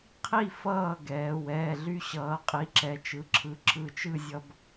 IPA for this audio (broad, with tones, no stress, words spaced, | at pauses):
qʰi˥˨ fʌː˥˨ɡɛː˩˧ wɛː˩˧˩ɮy˧ɕʌː˩˧qʼi˩˧˩ ǁɛ˩˧t͡ʃɯ˩˧˩ǁʰɯ˩˧˩ ǁɯ˧˩t͡ʃɯ˥˨ zʲʌ˧b